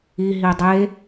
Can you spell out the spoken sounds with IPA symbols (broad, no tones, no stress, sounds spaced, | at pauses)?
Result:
i ɦ i dˤ e